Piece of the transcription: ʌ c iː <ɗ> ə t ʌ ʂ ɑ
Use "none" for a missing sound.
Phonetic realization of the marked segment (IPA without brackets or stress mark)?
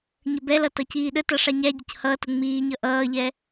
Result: ɗ